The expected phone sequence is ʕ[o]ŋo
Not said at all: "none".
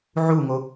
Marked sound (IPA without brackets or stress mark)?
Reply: u